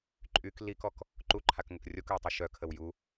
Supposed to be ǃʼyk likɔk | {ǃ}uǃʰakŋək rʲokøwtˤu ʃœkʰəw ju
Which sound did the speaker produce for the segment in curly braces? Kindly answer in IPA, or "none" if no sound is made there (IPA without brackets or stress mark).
ǃ